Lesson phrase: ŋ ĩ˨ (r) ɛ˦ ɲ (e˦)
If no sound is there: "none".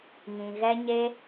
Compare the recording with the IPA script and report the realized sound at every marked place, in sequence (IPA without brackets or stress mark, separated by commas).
ɣ, e˦